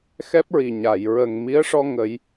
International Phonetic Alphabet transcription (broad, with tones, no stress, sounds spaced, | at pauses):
x ɛ˦˥ p̚ ɹ i˨˩ ɲ a˨˩˨ j ɹ ə˨˩ ŋ m i˧˥ ə̯ ʂ ɔ˧ ŋ ə˨˩˦ j